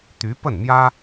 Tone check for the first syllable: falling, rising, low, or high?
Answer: rising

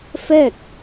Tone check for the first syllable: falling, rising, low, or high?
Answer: falling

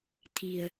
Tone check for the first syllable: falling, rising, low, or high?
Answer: low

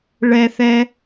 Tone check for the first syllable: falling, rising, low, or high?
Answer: high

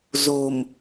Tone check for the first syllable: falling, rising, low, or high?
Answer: low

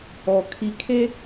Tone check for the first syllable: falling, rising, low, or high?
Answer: low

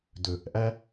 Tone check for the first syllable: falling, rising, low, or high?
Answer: low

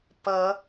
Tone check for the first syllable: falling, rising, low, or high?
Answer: rising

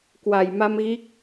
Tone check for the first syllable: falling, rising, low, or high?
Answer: low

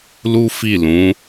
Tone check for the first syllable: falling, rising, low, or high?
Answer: high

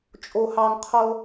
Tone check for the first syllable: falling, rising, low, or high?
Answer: high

